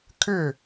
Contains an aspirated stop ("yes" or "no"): yes